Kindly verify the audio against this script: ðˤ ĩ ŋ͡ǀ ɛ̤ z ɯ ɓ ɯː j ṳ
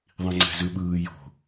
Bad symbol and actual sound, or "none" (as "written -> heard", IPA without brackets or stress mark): ṳ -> o̤